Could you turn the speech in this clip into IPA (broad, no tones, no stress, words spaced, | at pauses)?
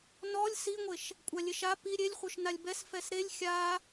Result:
nɔlʲ siŋʷeʃ | kʷʼalʲeʃa pi ɾʲelʲχʷœʃ nalʲbɛs fɛsɾelʲ xʲa